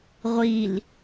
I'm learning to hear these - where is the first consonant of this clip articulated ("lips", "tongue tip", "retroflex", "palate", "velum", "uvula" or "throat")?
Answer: uvula